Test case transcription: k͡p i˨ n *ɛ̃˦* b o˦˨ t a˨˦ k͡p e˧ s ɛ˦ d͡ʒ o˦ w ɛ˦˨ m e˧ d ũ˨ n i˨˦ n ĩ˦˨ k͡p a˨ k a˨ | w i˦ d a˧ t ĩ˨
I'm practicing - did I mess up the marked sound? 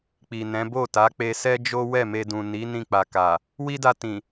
yes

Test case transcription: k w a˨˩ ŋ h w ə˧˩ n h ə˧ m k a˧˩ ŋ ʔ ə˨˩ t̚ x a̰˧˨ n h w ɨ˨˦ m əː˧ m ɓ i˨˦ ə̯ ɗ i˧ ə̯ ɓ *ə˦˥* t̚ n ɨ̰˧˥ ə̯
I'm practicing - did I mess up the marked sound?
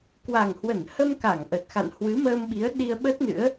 no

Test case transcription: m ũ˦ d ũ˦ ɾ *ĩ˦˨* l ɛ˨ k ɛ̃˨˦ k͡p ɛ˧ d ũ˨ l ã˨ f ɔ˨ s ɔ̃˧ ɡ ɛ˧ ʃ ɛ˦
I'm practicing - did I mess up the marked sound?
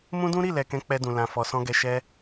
yes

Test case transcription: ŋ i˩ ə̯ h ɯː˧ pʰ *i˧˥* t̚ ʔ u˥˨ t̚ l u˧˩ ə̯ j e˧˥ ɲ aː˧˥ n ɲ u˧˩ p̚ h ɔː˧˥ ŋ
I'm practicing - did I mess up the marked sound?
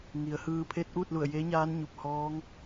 yes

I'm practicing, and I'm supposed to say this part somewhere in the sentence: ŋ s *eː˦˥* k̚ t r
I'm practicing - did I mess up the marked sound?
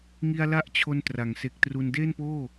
yes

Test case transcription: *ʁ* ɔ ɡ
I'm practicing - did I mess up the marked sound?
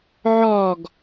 yes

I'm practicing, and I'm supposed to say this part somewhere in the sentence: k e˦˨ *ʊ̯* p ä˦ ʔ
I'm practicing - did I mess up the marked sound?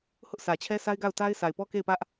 yes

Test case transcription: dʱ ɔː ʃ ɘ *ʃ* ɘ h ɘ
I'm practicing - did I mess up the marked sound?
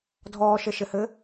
no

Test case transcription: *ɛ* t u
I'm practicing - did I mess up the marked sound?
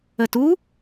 yes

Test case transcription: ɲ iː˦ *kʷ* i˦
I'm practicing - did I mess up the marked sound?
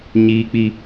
yes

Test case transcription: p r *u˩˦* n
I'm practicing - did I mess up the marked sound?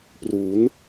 no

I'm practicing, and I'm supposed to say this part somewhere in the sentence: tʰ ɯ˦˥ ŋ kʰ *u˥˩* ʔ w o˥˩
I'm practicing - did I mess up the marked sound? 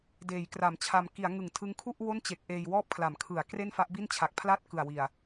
no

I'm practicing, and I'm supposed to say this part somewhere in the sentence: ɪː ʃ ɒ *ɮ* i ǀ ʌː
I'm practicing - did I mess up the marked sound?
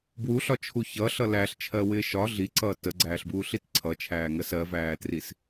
no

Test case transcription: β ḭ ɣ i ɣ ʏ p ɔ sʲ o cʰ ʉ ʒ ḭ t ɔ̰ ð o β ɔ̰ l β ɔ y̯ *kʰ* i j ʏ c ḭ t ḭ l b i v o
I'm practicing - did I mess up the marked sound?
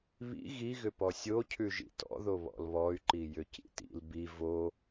yes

